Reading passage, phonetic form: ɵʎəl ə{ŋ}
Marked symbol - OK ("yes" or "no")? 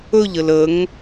yes